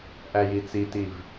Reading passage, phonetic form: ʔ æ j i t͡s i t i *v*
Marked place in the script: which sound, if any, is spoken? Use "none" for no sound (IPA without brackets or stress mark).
v